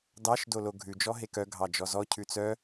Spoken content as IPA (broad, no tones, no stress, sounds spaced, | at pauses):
d ɑ ʃ d o l o ɡʱ ʉ d͡ʒ ɔ ɦ e k œ ɡʱ ɑ d͡ʒ ɔ z ɔ cʰ ʉ t͡s œ